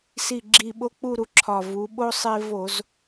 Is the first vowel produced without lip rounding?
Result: yes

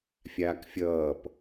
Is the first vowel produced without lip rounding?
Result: yes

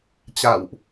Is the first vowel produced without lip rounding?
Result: yes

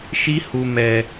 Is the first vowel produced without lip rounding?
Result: yes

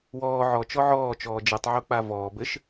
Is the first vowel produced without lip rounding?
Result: no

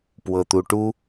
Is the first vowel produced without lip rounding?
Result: yes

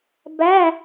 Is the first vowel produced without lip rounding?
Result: yes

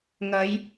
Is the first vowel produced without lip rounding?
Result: yes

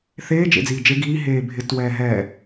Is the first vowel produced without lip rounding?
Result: yes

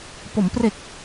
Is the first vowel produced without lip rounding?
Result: no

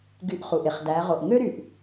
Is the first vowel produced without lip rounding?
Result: no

